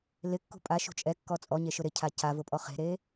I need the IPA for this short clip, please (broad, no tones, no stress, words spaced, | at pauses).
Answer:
lɪkːṳ pʼaʃṳ t͡ʃʼɛkːɔ t͡sʼɔɲe ʃʊɾɪcʰa cavʊ pʼɔχe̤ɾe